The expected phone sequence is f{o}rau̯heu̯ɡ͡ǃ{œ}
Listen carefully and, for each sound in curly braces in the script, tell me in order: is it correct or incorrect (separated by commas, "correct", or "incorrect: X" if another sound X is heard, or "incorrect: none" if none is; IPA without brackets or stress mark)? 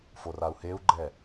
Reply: correct, incorrect: ɛ